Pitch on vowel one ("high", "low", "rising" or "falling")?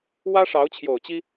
high